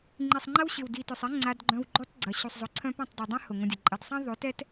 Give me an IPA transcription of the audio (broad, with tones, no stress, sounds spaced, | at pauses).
ŋ͡ǃ i˨ sˤ ŋ͡ǃ ɐ˦ w ɕ ɪ˨ w d i˨ t œ˨ sˤ ɛ˦ ŋ͡ǀ a˧ d ɡ͡ǃ œ̃˧ w ɡ͡ǃ ɔ˦ t ɡ͡ǀ ɐ˨ ɕ u˨ sˤ zˤ ʊ˨ ǀʰ œ̃˧ p ɔ̃˦˨ tˤ dˤ i˨ dˤ ɛ̃˦ h ʊ˨ ŋ õ˧ dʲ ɐ˨ ǃʼ ɐ˧ d sˤ ɛ̃˦ ðˤ ø˨˦ t ɛ˦ t